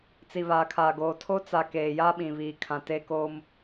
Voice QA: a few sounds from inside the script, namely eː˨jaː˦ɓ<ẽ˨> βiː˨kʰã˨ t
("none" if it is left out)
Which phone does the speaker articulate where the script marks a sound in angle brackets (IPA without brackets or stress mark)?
ĩ˨